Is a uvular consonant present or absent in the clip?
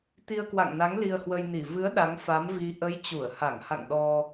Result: absent